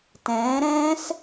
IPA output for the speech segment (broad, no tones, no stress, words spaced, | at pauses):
tɛ̃ːɾɛ̃ːs